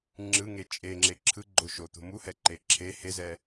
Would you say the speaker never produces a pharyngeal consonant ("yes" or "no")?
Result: yes